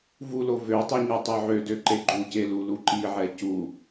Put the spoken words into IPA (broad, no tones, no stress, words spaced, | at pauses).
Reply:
vulo vøtˤe ɲɛtˤoʕødø ǃeɡ͡ǃuce luluǃiʕɛ cu